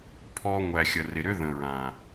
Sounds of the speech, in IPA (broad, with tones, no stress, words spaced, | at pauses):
pʰɔ˧ŋʷæ˨ xʲə˨rɪ˨ɾʏ˦ ðə̃˨ɹã˨